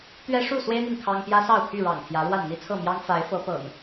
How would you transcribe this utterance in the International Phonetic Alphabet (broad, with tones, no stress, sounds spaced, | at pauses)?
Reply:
t̪ ɥ ɛ˦ ʂ u˥˨ s w e˦ ɪ̯ n̪ i˨ ŋ kʰ ɑ˦ ŋ p j ä˦ s ɑ˥˨ ʊ̯ pʰ y˥˨ ɻ ɑ̰˨˩ ŋ t̪ʰ j ä˨˦ ɻ w a˥˨ n n̪ i˦ t͡sʰ ɤ˥˨ m j ɑ˦ ŋ f a˨˦ ɪ̯ f ɤ˨˦ p ɤ̰˨˩ ŋ